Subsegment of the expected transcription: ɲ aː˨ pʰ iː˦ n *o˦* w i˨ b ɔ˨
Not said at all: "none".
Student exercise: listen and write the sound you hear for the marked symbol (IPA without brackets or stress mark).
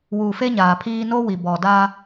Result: o˦